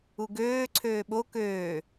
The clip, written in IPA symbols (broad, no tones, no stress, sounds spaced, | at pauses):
u ɡ øː ǀʰ øː ɓ o k øː